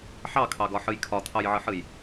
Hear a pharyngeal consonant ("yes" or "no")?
yes